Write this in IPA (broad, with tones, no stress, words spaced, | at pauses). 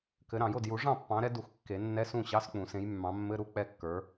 kɘ˨˦ɾɑ̃˨˩˦jo˥˩d ju˨˩˦ʐɑ̃˥˩pːɑ̃˨˦ɾɛ˨˦ du˨˩˦x kːe˨˩˦nːɛ˧˥˧ sũ˥˩ɕɑ˧˥˧sk͡pũ˨˩˦ sẽ˨˦jmːɑ̃˨˦mːɘ˧˥˧ɾu˧˥˧ k͡pɛ˥˩kːə˞˨˦